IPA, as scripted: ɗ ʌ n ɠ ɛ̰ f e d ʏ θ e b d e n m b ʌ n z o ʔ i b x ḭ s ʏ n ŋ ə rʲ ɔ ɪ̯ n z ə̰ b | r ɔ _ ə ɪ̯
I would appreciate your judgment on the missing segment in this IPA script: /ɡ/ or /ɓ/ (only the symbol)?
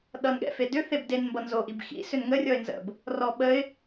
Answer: ɓ